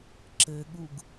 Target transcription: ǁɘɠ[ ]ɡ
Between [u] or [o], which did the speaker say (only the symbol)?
u